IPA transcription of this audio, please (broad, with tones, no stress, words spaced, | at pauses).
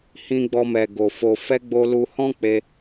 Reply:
hĩ˧ɡ͡bɔ˧mɛ˨ ɡo˨fo˧ fɛ˦ɡ͡bo˦ lu˧hɔ̃˦k͡pe˧